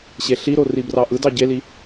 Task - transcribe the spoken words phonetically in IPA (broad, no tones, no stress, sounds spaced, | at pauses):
ɕ e ɬ i ɾ o r i b r ɑ ʔ ɯ d ɑ ɟ e l i